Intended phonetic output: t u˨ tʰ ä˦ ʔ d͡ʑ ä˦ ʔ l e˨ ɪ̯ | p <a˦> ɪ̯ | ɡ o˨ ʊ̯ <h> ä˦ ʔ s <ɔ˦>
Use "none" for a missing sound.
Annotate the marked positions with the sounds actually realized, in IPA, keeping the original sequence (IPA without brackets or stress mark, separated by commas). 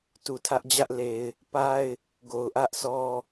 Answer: a˦, ʔ, ɔ˦